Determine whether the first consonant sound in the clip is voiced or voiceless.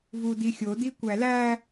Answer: voiced